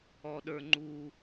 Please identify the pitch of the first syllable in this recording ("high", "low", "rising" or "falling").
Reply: low